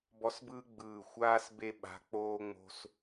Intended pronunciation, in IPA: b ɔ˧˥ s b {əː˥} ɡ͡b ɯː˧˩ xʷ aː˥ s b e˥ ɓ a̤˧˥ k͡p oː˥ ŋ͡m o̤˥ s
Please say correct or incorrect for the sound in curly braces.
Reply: incorrect